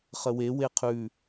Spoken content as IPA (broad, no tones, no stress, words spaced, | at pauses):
χəwe weqʰʉ